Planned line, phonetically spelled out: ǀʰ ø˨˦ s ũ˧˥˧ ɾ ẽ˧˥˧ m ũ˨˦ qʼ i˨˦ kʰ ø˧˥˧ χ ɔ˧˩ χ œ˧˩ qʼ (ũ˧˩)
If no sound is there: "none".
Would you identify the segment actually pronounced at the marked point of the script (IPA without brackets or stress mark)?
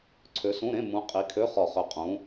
ũ˨˦